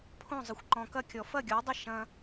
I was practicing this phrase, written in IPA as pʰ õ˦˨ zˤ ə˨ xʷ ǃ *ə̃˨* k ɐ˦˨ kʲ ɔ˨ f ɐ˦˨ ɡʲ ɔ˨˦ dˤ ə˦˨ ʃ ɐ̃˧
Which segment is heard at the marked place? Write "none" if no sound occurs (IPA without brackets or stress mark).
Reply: ɔ̃˨